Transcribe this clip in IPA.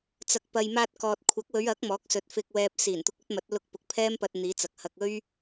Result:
t͡sɐ˨k̚pɐ˨j maː˧t̚kɔː˨t̚ kʷʰɐ˨˥k̚wɵ˨˧ɥɐ˨˥k̚ mɔː˨˥k̚sɵ˨t̚fɪ˧k̚wɛː˧p̚ siː˨˩n t̪ʊ˧k̚ɵ˥t̚mɐ˨˥t̚ lʊ˧k̚pʊ˨˥k̚ pʰɛː˥mpɐ˧t̚ n̪iː˨˧t͡sɐ˨k̚hɐ˧k̚ ɵ˥ɥ

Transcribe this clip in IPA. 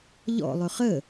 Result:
ʎɔ̰lˠɵ χə

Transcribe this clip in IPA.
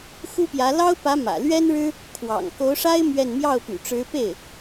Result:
xu˥pjä˧˥ lɑ˥ʊ̯pä˧˥ mä̰˨˩lɥɛ˥nɻɻ̩˥ | kʰwɑ̰˨˩ŋko˧˥ʊ̯ʂa˥ɪ̯ mɥɛ˥˧n mjɑ˥˩ʊ̯py̰˨˩ʈ͡ʂɻ̩˧˥ pe˥˩ɪ̯

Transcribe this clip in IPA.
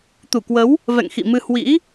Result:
t̪u˧˩kwə˨˦w | vɛ̰˧˨ŋxḭ˧˨mɨ˧ hwḭ˧˥

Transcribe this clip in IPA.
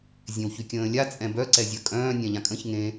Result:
zʲẽwçykʲə̃ːlʲa t͡sʼɛ̃bœ ǀɛzʲœkʼœ̃ː nʲɛ̃ʎãkʼə̃ç ŋẽ

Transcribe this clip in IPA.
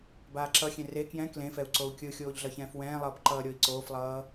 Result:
baːǁʌxʲẽ re kjɛ̃ klẽfɛu̯ ǀou̯kʲɯxʲoːʎ ɮʌçɛ̃ːfwɛ̃ːlˠʌːb ǃʌːɾʲoi̯ǀoːflˠʌː

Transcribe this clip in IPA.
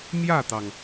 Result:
mjä˥˩t̪ɑ˩ŋ

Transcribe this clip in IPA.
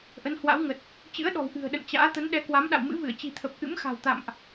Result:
ʔə˨˦nhwa̰˧˥wŋə˨˩t̚ | t͡ɕɨ̰˧˥ə̯ɗɔ̤˨˩w ʔɨ̤˨˩ə̯ɗə̰˧˨n t͡ɕa̰ː˧˥ t̪ə˨˦nɗɛ˨˦kwa˨˦m ɗa̰˧˨wmɨ̰˧˥vɨ˧˩ə̯ t͡ɕi̤˨˩t̪ʰə˨˩p̚ ʔɨ̰˧˥mxa̤˨˩wt̪a̰˧˨mʔ

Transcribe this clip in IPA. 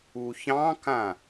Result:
uçɑ̃kã

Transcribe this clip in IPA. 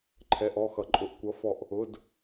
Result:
ǃʰɛ˧˥˧ʔɔ˧˥˧xʌ˧˥ǃʼʊ˧˥˧ʔ kʷʌ˧˥fɔ˦˨ʔ | ʊ˧˥˧d

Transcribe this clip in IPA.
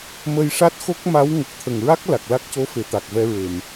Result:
mə˧jʂa˦˥t̚xo˦˥k̚ ma˧˥w ŋə˨˩k̚t̪ʰə˨˩ŋɹa˦˥k̚ la˨˩k̚la˦˥k̚co˧˥fe˨˩˨ t̪a˨˩k̚vɛ˧ɹe˨˩˨m

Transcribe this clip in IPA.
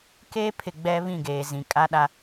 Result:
keː˦pʰɪ˨ ɡ͡bɛ˦βĩ˦˨ɡeː˨ zĩ˨kʼa˦ɗa˦

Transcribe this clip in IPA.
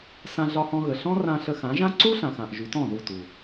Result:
sã˧ɮɒ˧hɔ̃˧ɣə˨ ɬɔ̃˦rã˧ ɬə˧xã˨˦ʒã˦ ǀu˦ɬã˨xã˨ʔ ʒy˨˦tɔ̃˦˨ ðu˦˨tu˨

